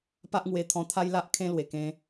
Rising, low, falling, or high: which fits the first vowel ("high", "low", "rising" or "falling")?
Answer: high